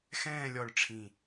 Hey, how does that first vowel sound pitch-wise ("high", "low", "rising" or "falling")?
falling